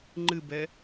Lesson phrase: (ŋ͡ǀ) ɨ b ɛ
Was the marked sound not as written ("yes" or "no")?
yes